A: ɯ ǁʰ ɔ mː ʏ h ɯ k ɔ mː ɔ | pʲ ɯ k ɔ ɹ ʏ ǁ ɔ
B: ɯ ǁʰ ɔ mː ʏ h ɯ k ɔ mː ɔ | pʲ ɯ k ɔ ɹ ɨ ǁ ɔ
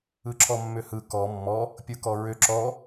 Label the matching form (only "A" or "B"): A